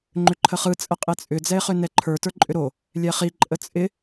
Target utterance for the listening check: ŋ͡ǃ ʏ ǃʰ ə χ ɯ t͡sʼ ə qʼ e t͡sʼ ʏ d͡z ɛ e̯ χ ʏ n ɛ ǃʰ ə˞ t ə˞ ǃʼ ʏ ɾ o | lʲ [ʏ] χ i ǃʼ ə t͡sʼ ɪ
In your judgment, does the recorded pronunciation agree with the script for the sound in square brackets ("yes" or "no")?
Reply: no